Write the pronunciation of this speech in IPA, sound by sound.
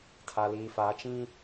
tʰ a˨ l iː˨ f a˨˦ t͡ʃ ĩ˦

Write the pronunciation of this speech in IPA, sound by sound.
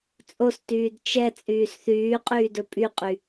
t͡sʼ o s t yː d t͡ʃ ɛ t͡sʼ yː s θ yː qʼ yː d ɵ pʼ y qʼ y

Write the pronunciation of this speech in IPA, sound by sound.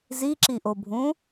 z i ǁ i ʔ o bʱ ũ

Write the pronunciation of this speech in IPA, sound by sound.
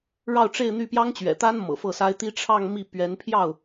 ɻ ɑ˥˧ ʊ̯ ʈ͡ʂ e˥˧ ɪ̯ n̪ y˥˩ p j ɑ˥ ŋ t͡ɕ ɥ ɛ̰˨˩ t̪ a˥ n m ɤ̰˨˩ f ɤ˥˩ s a˥ ɪ̯ t̪ i˥ ʈ͡ʂʰ ɑ˥˧ ŋ m i˥˩ p ɥ ɛ˧˥ n pʰ j ɑ˥˩ ʊ̯

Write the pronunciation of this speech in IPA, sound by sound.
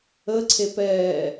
ə ǀʰ e p ɛː

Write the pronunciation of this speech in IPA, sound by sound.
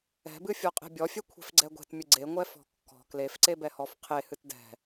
ɛ̤ b ɨ fʲ ɔ qʼ e̤ bʲ ɔ fʲ ɛ kʷʰ e̤ f ɡ͡ǀ ɛ ɡʷ e̤ t mʲ ɨ ɡ͡ǀ e ŋʷ ɛ f ɔ̤ kː ɔ̤ k l e f ǀ e b ɛ h ɔ f qʰ e h ɨ t d ɛ̤

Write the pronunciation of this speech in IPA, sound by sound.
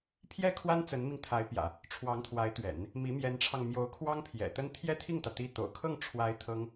pʰ j ɛ˥˩ kʰ w a˥ n t͡s ə˧˥ n m i˧ ŋ t̪ʰ a˧˥ ɪ̯ p j ä̰˨˩˦ | ʈ͡ʂʰ w ɑ˧˥ ŋ t̪ʰ w a˧˥ ɪ̯ t̪ ɥ ɛ̰˨˩˦ n | m i˧˥ m j ɛ˧˥ n ʈ͡ʂʰ ɑ˧ ŋ m j o˧˥ ʊ̯ kʰ w ɑ˥ ŋ pʰ j ɛ̰˨˩ t̪ ə˥ n t̪ʰ j ɛ˥ t̪ʰ i˥˩ ŋ t̪ ä˩ t̪ i˥˩ t̪ o̰˨˩ ʊ̯ kʰ ɤ˥˩ ŋ ʈ͡ʂʰ w a˧˥ ɪ̯ t̪ʰ ɤ˥ ŋ

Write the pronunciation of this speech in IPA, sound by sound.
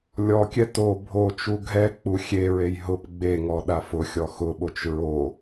lʲ ɔ kʲ ɛ t o bʱ o t͡ʃ u ɡʱ ɛ k͡p u xʲ e ɹ e j ɦ ʊ p ɡ͡b e ŋ ɔ ɗ a f ʊ xʲ ɔ x ʊ ɓ o t͡ʃ ɹ o

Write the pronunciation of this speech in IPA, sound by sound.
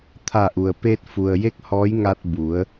t̪ʰ a˧˩ ʔ u˩ ə̯ p eː˧ t̚ f u˩ ə̯ j e˥˨ k̚ h ɔː˧˥ j ŋ a˧ t̚ b u˩˧ ə̯

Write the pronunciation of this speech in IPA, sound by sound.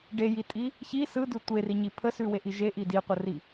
ɖ e j i tʼ i | ç i s ɯ d ʉ tʷ e r i ɲ i pʰ ə s ʉ w e ʔ i ʒ e ʔ i d i qʷ ə r i

